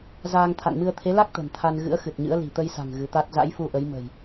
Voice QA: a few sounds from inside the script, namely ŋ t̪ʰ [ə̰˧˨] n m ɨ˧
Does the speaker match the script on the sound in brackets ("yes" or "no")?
no